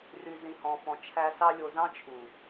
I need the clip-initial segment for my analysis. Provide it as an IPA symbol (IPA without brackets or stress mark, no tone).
r